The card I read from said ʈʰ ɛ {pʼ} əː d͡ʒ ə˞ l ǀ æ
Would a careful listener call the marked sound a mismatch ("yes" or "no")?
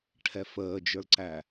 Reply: yes